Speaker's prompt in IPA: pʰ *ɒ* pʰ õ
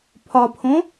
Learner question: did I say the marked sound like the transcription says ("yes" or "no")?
yes